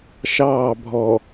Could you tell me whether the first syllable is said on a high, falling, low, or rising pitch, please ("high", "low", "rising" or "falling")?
falling